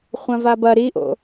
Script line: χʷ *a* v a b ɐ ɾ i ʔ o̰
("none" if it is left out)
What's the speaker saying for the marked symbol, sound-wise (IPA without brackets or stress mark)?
ã